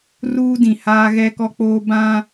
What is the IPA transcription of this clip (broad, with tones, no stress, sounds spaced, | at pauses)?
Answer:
r uː˦ d ĩ˨ h aː˦ ɣ ɛ˦ k ɔ˦ k͡p oː˦ b ã˦